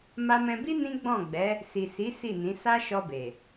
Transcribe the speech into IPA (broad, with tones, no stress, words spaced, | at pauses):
ma˧mɛ̃˧bi˦ nĩ˦ɡ͡bɔ̃˦˨ɡ͡bɛ˨˦ | si˨si˨˦ si˦˨nĩ˨˦ sa˦ʃɔ˧be˨